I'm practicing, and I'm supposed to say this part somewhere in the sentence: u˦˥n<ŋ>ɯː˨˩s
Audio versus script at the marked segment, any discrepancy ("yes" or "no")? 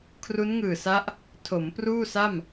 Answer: no